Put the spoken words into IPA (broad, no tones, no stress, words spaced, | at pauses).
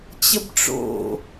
t͡ɕəbʈ͡ʂo̰